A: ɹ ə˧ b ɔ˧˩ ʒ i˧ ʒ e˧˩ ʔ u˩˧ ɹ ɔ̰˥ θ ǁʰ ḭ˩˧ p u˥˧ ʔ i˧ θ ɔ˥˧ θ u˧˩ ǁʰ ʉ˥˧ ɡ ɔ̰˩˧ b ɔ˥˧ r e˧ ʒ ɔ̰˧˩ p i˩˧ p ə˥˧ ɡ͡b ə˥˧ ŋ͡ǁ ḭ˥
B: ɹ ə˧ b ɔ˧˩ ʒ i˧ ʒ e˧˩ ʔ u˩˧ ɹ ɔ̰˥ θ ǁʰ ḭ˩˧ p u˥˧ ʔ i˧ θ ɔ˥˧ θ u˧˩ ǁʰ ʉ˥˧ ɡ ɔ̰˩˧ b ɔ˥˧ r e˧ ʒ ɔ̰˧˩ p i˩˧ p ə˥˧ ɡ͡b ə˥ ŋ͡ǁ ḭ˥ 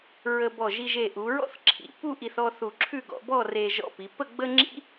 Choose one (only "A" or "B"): B